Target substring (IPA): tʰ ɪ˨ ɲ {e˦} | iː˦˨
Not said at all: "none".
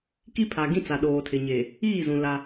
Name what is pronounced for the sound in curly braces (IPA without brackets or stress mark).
e˨